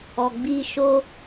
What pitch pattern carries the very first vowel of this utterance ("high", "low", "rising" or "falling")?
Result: low